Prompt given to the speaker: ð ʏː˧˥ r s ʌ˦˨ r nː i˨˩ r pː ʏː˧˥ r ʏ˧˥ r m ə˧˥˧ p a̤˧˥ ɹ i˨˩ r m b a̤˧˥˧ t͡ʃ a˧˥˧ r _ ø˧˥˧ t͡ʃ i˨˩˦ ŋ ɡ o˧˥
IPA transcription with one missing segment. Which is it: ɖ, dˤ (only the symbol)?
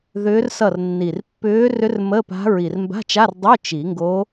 dˤ